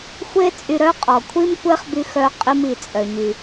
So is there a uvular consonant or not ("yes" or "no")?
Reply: yes